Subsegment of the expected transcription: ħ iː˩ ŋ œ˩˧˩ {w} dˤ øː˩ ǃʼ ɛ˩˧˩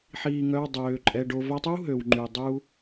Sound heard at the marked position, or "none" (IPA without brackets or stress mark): w